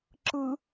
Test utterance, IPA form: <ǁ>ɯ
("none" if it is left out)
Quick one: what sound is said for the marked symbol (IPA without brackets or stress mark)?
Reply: ǁ